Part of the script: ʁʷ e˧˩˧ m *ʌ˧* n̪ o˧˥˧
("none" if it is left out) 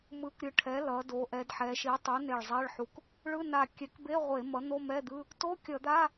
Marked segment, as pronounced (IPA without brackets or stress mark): ʌ˩˥